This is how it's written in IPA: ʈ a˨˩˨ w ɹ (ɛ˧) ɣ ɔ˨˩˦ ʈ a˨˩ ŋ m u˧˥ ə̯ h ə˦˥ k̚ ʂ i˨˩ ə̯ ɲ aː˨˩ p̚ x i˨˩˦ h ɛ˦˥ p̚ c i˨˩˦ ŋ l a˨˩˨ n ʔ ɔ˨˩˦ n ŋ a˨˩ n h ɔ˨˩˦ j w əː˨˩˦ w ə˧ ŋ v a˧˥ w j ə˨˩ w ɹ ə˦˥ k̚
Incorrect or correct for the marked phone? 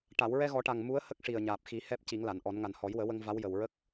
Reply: correct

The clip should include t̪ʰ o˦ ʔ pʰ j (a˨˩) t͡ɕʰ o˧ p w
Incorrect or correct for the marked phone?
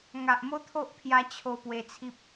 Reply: incorrect: a˧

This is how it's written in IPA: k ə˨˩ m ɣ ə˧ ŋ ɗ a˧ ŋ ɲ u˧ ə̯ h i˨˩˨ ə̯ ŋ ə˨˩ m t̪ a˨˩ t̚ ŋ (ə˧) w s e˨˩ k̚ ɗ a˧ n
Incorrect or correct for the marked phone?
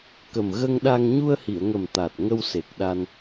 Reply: correct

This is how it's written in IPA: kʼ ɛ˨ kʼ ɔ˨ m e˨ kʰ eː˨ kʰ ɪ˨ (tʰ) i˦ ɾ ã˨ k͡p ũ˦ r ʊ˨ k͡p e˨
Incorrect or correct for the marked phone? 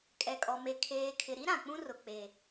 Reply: incorrect: ɾ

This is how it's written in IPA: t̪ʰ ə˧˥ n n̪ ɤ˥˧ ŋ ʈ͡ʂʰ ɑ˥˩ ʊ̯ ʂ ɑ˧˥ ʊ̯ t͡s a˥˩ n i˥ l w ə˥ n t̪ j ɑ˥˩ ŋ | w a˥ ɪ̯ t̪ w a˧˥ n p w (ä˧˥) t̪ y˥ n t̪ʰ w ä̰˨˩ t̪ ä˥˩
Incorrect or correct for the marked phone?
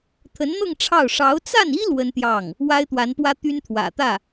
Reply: incorrect: ä˥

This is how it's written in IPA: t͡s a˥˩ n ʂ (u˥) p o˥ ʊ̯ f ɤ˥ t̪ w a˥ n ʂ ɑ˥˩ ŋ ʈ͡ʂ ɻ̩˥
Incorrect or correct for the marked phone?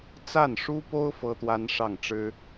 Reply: correct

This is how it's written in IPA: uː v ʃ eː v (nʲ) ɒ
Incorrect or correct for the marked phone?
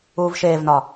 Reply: incorrect: n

